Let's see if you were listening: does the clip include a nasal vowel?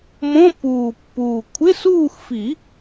yes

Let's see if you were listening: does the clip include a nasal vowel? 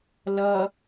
no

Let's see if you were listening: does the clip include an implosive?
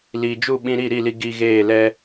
yes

